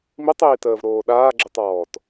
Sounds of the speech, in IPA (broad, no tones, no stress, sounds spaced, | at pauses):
m i tˤ iː t əː v ɾ oː ɗ aː ɡ͡ǁ i tˤ ɔː t